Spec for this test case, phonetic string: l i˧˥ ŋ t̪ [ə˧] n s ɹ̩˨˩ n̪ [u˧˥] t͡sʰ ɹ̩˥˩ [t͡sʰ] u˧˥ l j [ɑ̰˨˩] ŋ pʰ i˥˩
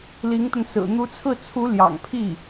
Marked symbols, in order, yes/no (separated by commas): yes, yes, yes, yes